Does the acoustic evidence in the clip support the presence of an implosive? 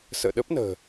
yes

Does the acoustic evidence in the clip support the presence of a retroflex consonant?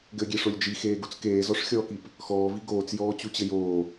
yes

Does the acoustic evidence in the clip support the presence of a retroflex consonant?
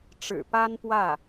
yes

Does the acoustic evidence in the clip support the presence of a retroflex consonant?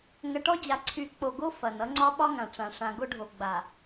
yes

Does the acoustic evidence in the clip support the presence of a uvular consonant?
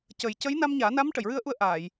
no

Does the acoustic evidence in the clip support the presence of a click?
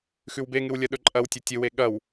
yes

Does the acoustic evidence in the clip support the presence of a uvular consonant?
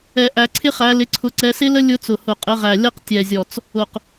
yes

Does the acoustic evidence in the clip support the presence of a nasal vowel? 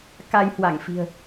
no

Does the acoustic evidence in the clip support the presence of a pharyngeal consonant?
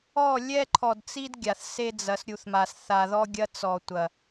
no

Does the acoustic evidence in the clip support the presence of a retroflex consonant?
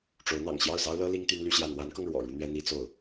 yes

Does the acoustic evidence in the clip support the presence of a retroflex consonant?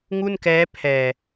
no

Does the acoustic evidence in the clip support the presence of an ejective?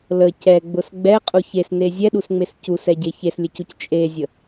yes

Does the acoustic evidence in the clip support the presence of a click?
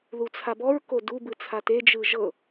no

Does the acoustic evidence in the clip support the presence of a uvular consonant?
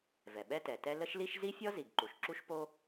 no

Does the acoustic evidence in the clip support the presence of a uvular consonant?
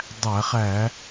yes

